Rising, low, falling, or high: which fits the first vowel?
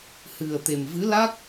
low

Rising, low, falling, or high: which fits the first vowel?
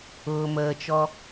low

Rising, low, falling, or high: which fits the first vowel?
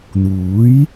rising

